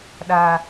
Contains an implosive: yes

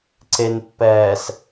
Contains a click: yes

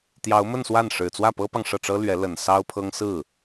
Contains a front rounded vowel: no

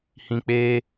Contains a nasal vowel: yes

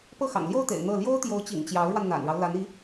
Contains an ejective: no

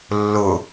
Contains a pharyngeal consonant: no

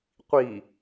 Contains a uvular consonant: yes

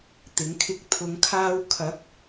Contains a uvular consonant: no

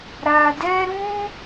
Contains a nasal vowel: yes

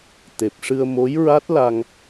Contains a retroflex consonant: yes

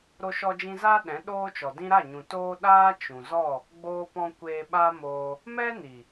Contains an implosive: yes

